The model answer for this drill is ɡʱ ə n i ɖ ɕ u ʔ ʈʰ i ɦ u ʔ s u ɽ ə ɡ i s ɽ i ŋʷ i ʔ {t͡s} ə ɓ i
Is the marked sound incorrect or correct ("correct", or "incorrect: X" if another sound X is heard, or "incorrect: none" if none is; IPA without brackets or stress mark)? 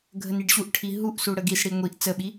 correct